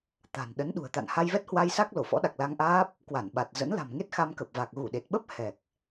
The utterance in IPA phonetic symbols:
t̪ a̤˨˩ n ɗ ə˨˦ n ɗ ṳ˨˩ ə̯ t̪ a̰˧˨ n h a˧ j v ɛ˦˥ t̚ h w a˧ j s a˦˥ k̚ l o˧˩ f ɔ̰˧˥ ɗ a˨˩ k̚ l a˧ ŋ ʔ aː˦˥ p̚ | k w a˧˩ n ɓ a˨˩ t̚ z ə̰˧˥ n l a̤˨˩ m ŋ e˦˥ t̚ x a˧ m k ə˨˩ p̚ v a˨˩ k̚ ɣ u˧˩ ɗ e˨˩ t̚ ɓ ə˦˥ p̚ h ɛ˨˩ k̚

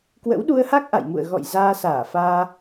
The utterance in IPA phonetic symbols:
k w ə̰˧˥ w ɗ u˧ ə̯ h a˦˥ k̚ ʔ a̰˧˨ j m ṵ˧˨ ə̯ ɣ ɔ̰˧˨ j z aː˧ s aː˧˩ f aː˧

